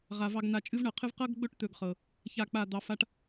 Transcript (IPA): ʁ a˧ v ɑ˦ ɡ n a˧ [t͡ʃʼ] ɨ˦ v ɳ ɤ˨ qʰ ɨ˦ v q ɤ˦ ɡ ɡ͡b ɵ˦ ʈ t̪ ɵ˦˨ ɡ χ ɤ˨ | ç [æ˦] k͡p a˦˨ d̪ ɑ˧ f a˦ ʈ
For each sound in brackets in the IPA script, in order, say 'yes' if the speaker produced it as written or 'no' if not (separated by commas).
yes, no